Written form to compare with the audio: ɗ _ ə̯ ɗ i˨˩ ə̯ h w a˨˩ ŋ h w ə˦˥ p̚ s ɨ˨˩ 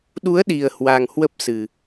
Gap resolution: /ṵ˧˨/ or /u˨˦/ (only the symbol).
u˨˦